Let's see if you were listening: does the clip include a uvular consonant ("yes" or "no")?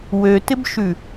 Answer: no